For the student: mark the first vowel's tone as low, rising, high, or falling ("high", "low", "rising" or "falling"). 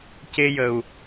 high